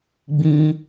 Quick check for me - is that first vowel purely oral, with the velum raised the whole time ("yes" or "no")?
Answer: no